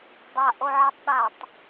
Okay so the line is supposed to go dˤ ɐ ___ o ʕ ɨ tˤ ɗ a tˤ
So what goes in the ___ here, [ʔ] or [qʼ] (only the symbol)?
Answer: ʔ